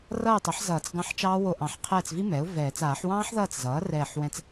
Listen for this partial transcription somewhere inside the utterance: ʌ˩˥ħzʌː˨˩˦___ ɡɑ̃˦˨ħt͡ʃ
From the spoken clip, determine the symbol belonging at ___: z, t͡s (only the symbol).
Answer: t͡s